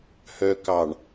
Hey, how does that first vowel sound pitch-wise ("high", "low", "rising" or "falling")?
low